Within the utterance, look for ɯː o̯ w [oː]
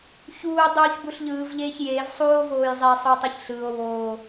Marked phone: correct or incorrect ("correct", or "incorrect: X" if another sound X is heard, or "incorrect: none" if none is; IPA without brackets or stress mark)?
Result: correct